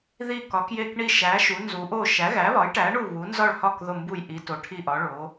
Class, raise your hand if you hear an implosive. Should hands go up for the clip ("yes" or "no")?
no